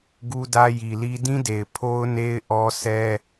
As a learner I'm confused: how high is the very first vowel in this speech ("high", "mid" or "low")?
high